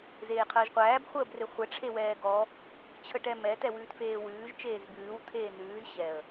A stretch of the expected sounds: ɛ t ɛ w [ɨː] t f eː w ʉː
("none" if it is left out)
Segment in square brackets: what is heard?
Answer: ʉː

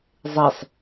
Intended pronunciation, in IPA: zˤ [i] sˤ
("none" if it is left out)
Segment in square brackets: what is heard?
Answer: e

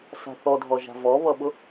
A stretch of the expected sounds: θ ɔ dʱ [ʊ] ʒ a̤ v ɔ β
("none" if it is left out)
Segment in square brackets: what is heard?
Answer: ɔ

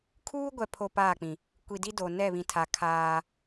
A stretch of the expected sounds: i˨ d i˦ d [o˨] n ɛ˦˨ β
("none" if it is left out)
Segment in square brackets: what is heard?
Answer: o˨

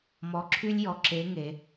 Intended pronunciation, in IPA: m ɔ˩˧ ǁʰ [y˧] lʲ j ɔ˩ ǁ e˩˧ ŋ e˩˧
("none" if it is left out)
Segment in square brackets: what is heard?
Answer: y˧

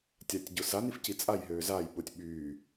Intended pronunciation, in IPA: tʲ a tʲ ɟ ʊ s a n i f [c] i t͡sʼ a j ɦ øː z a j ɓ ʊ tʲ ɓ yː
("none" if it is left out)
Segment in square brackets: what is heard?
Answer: c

